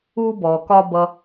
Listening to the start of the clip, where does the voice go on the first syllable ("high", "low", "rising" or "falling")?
high